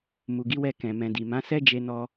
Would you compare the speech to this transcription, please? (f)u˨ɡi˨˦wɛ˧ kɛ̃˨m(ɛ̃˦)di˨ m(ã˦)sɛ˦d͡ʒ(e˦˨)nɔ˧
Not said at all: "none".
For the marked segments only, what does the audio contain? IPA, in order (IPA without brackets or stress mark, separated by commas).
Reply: m, ɛ̃˨, ã˨˦, e˧